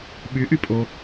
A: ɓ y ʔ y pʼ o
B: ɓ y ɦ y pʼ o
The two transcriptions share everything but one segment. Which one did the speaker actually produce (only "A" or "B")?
A